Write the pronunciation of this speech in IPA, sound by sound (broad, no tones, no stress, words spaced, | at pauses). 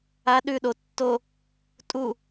a ɗʉ ɗo tːo | tʼu